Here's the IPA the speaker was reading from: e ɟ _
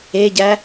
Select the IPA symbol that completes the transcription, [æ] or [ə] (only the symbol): æ